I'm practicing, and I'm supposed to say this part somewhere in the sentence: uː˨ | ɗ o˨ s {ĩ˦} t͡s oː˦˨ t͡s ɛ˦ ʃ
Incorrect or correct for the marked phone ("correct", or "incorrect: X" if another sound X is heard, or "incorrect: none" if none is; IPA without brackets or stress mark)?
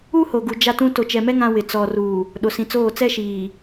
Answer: incorrect: ĩ˨